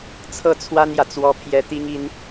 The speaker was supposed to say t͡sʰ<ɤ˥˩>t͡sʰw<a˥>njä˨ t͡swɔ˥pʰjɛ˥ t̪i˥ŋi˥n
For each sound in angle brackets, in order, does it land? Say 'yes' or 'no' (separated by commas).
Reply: yes, yes